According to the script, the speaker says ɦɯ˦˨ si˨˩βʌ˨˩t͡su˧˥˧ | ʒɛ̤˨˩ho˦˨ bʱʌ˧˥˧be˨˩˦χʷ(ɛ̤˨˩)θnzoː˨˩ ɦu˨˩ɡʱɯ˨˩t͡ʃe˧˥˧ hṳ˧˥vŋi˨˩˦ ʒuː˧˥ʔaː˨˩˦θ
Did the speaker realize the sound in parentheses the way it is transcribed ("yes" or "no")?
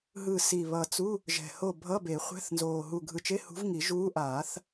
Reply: no